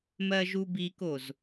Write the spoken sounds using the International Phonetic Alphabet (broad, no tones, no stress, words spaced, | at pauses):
mɜʒubikoz